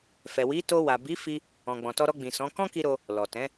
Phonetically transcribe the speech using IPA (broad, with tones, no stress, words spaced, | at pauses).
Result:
fɛ˨ wi˨˦to˧wa˨ bi˨˦fi˧ | ɔ̃˨ ɡ͡bɔ̃˨tɔ˧ɾɔ˧ ɡ͡bĩ˨ sɔ̃˨˦ kɔ̃˦ki˧ɾo˧ | lɔ˨tɛ̃˨˦